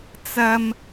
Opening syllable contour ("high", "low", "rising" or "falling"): low